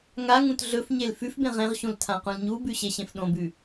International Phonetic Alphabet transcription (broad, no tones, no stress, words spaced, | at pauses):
ŋaŋũt ɮɵfɲel fʉfbẽ ʁẽʁɕũl tʰãqũlɲubʉ ɕeɕẽfɗõbʉ